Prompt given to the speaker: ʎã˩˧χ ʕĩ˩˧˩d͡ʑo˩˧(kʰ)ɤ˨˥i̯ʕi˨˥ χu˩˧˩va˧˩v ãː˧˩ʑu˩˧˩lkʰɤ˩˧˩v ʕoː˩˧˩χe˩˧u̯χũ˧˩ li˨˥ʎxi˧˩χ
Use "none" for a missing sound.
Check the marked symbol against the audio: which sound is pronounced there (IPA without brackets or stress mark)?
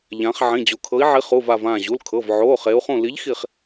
kʰ